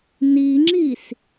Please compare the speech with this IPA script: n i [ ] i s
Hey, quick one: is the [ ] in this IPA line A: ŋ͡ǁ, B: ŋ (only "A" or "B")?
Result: A